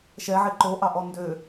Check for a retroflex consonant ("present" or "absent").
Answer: absent